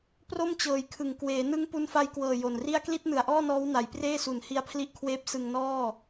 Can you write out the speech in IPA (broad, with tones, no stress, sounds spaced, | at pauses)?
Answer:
p r o˥˩ m t͡ɕ ɤː˨˩ j kʰ ɯ˨˩ ŋ k w eː˩˦ n ɯ˦˥ ŋ p u˧ n f a˧ j k w ɤː˨˩ j o˨˩ n r i˥˩ a̯ k l i˥˩ t̚ n ɯ˨˩ a̯ ʔ ɔː˥˩ n ɔː˦˥ w n a˩˦ j p r eː˥˩ s u˨˩ n h i˦˥ a̯ pʰ l i˦˥ ʔ kʰ w eː˦˥ p̚ s ɯ˧ ŋ n ɔː˥˩